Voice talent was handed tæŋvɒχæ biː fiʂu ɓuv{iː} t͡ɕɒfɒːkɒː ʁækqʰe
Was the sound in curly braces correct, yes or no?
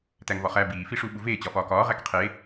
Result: no